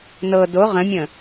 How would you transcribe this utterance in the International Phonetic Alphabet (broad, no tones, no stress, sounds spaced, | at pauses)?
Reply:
n ɤ d o ʁ ə̃ mʲ ə̃